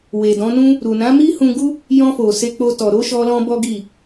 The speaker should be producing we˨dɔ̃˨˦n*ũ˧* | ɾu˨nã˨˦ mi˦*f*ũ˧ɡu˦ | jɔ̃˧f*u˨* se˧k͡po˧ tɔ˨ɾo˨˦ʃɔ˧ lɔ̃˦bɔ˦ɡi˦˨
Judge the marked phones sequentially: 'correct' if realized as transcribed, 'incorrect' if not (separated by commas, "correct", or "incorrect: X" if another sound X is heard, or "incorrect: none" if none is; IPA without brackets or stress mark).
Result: incorrect: ũ˦, incorrect: h, incorrect: o˨